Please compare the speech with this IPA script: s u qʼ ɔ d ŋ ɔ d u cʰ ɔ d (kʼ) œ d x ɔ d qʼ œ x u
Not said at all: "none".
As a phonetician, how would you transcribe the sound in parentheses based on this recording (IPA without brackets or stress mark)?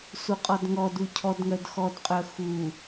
ŋ